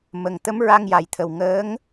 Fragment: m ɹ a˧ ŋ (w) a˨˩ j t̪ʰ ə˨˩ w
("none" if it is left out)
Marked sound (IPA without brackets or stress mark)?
j